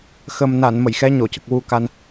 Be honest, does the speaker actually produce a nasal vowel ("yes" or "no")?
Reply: no